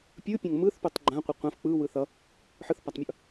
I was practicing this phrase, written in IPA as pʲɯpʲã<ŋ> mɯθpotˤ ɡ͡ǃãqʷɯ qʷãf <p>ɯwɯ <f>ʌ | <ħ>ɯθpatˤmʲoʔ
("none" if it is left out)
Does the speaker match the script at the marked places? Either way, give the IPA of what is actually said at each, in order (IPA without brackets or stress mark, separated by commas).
ŋ, k͡p, θ, ħ